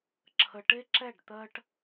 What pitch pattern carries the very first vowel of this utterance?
low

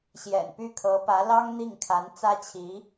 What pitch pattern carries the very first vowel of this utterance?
low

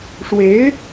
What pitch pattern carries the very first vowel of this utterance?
rising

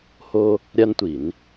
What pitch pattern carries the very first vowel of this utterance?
high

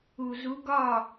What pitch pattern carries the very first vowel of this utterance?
low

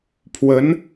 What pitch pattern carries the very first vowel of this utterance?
rising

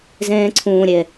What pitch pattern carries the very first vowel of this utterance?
high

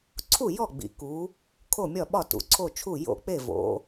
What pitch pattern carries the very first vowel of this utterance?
falling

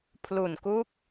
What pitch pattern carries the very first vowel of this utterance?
low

